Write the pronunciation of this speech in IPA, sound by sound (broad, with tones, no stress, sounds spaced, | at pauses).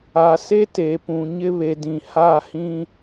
a˨ s e˦ t e˨ p ũ˨ ɲ ɪ˦ β e˨ d ĩ˨ h a˦˨ h ĩ˦